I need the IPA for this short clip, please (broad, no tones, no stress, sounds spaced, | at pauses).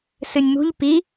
s ɨ nʲ m ṳ ʎ p i